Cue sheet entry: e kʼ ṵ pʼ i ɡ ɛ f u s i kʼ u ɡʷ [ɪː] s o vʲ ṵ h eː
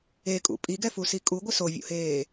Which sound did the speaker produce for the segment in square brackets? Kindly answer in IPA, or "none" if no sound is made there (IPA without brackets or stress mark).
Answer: ɪ